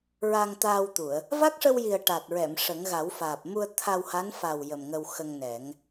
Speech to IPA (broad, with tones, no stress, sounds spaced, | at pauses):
ɹ a˧ ŋ t̪ aː˧ w t̪ u˨˩˨ ə̯ | v a˦˥ k̚ ʂ ə˧ w j i˨˩ ə̯ ʈ a˨˩ t̚ ɹ ɛ˨˩˨ m ʂ ə˨˩˦ ŋ ɣ a˨˩˦ w f aː˨˩ p̚ m u˧ ə̯ t̪ʰ a˧ w h a˧˥ n f a˨˩ w j ə˨˩ m ŋ ə˧ w x ə˧ ŋ n ɛ˨˩˦ ŋ